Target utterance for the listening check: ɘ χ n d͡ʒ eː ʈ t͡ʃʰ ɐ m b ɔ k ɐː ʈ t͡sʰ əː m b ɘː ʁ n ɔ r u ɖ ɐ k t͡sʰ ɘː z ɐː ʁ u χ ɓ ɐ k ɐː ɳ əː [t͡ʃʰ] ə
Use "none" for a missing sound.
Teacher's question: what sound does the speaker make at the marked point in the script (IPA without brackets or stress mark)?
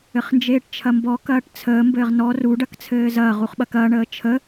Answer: t͡ʃʰ